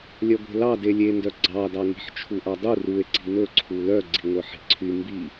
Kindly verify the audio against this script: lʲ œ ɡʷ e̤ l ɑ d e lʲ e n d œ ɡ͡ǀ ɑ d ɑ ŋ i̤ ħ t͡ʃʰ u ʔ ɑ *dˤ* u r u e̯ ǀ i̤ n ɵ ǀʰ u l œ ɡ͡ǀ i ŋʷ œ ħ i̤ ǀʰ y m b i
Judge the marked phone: correct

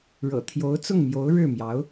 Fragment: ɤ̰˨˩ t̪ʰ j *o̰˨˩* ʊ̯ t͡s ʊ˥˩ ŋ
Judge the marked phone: incorrect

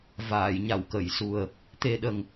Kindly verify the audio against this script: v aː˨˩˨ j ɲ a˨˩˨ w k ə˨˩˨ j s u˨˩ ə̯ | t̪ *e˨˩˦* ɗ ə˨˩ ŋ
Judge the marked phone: incorrect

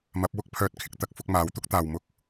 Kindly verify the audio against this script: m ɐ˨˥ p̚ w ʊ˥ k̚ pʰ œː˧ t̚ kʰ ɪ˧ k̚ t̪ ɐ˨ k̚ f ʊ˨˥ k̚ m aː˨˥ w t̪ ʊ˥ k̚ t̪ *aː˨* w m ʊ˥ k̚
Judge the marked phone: correct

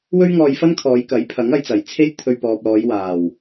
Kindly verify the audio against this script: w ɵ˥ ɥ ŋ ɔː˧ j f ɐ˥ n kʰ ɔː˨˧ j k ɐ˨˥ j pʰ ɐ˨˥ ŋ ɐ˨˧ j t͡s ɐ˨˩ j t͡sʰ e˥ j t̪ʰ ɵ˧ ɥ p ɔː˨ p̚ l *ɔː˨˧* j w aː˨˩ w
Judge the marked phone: correct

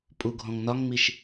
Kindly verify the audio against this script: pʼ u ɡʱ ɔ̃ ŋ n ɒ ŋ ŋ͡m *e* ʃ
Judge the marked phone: incorrect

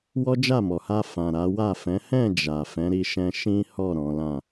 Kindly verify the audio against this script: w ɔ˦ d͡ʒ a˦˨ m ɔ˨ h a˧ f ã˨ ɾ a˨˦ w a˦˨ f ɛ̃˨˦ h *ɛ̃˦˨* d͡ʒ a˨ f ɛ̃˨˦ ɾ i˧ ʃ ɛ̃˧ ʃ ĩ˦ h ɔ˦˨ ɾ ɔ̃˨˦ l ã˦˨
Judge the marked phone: correct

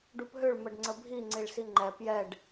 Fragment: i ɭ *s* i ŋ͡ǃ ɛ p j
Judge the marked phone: correct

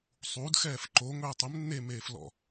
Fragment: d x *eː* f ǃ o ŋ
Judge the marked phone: incorrect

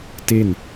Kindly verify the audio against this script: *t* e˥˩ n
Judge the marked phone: correct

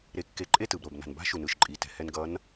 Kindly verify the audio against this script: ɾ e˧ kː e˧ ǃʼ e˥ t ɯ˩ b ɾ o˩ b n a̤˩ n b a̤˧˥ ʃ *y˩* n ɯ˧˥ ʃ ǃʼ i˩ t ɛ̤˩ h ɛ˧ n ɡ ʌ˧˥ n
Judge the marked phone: incorrect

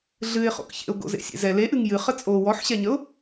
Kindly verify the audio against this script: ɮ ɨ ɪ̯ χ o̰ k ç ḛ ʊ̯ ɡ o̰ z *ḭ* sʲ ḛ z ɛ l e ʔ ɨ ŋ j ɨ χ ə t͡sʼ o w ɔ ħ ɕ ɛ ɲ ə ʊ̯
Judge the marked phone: incorrect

